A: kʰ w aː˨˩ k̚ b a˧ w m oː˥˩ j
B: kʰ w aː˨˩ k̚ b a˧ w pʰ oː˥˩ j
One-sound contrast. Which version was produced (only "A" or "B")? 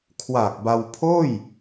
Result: B